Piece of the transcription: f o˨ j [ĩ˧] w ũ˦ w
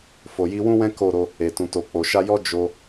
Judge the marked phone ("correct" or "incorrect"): incorrect